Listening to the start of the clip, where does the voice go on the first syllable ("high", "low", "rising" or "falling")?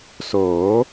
rising